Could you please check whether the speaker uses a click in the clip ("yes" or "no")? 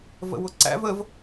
yes